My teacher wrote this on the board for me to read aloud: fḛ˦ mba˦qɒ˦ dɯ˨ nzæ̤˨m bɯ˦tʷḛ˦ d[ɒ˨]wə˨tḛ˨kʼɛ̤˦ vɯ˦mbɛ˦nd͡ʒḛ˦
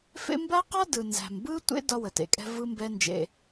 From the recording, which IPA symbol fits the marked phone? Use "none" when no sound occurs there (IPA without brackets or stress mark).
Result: ɒ˦